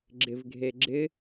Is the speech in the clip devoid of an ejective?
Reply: yes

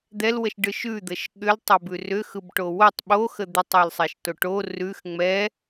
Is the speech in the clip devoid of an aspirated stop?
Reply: yes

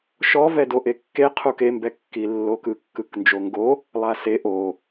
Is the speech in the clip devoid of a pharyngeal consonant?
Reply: yes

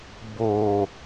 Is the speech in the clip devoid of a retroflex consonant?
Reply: yes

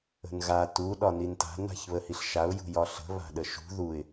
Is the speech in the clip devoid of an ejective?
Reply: yes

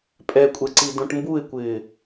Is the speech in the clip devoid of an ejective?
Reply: no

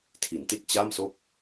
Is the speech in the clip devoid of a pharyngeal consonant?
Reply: yes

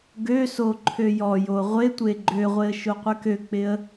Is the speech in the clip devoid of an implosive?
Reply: yes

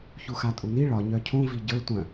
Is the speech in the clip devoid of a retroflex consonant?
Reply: no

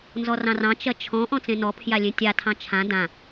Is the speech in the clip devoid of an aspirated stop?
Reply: no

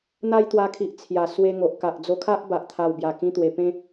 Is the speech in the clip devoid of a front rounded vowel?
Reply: yes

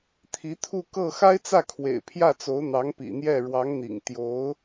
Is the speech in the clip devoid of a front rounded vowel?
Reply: yes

